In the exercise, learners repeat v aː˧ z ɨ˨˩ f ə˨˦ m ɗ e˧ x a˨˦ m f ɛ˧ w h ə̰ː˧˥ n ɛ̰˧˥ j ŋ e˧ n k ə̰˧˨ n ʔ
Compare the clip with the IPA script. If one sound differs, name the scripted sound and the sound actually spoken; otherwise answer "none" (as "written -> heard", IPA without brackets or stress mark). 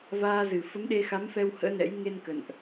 none